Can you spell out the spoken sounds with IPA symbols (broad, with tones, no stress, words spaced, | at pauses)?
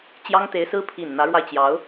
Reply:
t͡ɕjɑ˥ŋt̪e˧˥ɪ̯sɹ̩˥ pʰi˨˩n n̪ä˧˥ɻwa˧ɪ̯t͡ɕjɑ˧˥ʊ̯